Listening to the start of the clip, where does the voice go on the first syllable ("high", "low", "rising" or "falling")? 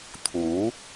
rising